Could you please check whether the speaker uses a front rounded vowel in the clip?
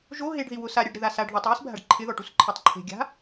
no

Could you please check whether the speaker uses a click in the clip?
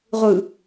no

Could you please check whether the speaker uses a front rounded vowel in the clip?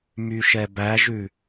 yes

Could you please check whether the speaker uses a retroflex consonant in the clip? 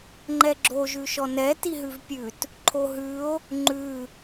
no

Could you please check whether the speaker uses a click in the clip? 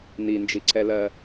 yes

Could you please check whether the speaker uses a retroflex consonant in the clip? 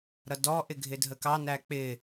no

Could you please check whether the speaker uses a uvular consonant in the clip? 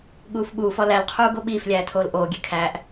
yes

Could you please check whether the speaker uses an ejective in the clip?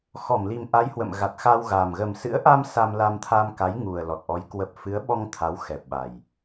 no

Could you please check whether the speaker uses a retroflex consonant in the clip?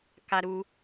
no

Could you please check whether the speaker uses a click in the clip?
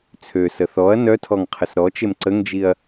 yes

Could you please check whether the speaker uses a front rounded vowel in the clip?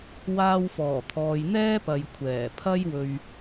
no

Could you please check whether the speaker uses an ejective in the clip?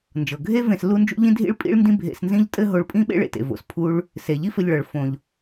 yes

